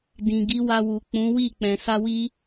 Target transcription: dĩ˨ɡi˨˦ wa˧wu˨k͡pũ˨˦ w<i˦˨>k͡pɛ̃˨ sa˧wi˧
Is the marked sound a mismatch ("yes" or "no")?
no